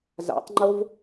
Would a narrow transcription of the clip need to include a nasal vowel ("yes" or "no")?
no